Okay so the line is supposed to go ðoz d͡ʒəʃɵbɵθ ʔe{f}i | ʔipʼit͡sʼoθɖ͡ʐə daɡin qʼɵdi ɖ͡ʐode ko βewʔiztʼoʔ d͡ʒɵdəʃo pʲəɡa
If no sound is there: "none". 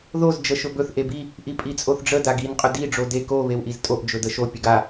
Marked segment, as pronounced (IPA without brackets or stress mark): b